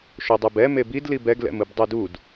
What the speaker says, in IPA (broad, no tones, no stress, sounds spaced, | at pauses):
ʃ o dˤ ɛ b ɛ m e b i d l i b ɛ ɡ l ɛ̰ m ɯ b dˤ e d u d